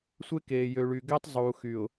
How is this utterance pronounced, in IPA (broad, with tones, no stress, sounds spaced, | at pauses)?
sʷ e˦ k eː˨ j ø˨ ɭ y˨ ɡ ɛ˦ tˤ zˤ uː˨ x y˨ ʊ̯